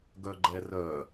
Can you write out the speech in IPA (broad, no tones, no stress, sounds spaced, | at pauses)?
ɡ œ ɡ͡ǃ ɛ r œ